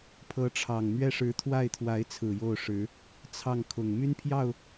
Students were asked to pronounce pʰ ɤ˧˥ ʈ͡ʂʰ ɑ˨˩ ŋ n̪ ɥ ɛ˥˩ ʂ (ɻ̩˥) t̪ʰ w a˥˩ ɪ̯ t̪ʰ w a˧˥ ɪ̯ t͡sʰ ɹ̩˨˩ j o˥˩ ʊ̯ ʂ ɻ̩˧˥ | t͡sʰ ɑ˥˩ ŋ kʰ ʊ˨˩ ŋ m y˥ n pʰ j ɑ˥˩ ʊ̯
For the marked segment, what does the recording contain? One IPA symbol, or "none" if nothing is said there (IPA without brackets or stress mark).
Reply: ɻ̩˧˥